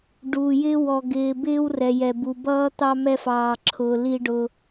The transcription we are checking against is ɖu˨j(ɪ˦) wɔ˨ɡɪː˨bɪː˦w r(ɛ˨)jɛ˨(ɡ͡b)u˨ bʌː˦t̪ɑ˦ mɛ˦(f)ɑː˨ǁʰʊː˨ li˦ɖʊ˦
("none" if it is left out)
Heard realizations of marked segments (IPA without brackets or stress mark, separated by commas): ɪ˦, ɛ˨, b, f